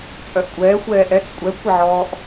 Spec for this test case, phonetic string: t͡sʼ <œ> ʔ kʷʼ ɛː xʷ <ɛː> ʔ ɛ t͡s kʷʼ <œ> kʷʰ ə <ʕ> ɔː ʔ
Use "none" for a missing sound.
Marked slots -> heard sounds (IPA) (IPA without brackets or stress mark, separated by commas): œ, ɛː, ɛ, ʕ